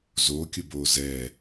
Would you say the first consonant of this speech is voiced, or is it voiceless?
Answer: voiced